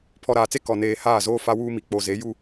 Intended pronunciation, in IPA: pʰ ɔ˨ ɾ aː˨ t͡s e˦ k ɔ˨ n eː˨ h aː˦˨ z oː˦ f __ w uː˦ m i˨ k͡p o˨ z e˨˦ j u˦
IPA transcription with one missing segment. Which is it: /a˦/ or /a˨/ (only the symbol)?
a˦